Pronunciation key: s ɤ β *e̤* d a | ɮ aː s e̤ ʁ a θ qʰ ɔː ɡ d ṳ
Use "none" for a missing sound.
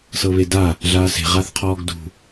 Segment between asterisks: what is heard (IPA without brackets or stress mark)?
e